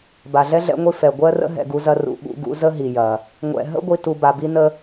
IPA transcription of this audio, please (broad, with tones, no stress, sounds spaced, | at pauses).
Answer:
b a˩ ɮ ɛ˥ ɮ ɛ̰˦ ŋʷ i˦ f ɛ˩ ɡʷ ɜ˥ r ə̰˥ ɦ ɛ̰˨ ɡ u˦ z ɐ˦ r ṵ˨ ɓ ṵ˦ ɡ ṵ˦ z ə˥ ɦ i˩ j ɐ˩ | ŋʷ ɛ̰˨ ɦ ə̰˥ ɡʷ i˨ t u˨ b a˨ b i˥ n ə˥